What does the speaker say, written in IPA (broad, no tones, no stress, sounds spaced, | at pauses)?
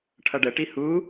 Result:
ʈʰ ʌ ɖ ə ʈ i h u